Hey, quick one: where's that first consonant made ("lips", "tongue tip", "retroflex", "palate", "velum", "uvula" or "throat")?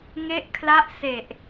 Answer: velum